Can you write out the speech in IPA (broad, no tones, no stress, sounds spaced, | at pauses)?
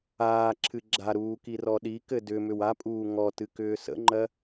aː ǁʰ ɨ ɡ͡ǁ a ɾ uː k i r ɔ ɗ i k ɘ d ʏ m ʏ w a pʼ uː ŋ ɔ t ɨ k ʏː s ə̰ ŋ͡ǃ ɜ